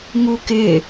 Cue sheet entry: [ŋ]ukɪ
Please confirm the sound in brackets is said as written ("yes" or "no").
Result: yes